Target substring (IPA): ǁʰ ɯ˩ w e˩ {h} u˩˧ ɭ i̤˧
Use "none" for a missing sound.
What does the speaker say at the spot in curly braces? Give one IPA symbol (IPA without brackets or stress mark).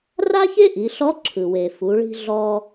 f